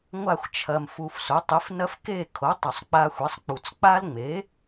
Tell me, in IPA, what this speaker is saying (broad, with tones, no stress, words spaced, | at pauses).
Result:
ŋʷa˦˨xʷt͡ʃʰɐ˨m fu˨f so˩˥tˤi˩˥fnɐ˦f ke˦˨kʰo˩˥ tˤɐ˨sˤk͡pa˦xʷi˩˥sˤk͡pu˨t͡s k͡pa˦lŋ͡me˩˥